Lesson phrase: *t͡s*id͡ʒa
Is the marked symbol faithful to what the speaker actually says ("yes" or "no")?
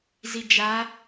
no